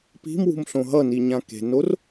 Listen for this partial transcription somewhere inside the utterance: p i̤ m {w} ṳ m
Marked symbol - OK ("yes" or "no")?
yes